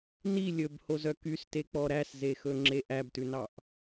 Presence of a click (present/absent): present